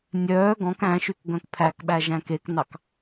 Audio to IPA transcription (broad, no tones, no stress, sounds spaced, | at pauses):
nʲ œː ɡ ɔ̃ k æ̃ ʃ y k ɡ œ̃ k pʰ æ k ɓ æ ʒ æ̃ k e k n ɑ k